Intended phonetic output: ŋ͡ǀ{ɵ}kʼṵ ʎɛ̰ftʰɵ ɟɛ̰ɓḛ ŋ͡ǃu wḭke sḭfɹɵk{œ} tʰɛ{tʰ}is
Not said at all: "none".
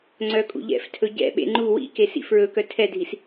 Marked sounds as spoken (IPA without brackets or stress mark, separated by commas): œ, œ, dʱ